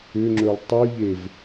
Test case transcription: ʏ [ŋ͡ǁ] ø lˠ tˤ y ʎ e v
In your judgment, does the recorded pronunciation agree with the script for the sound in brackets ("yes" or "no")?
yes